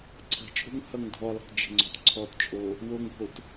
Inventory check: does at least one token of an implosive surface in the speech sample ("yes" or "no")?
no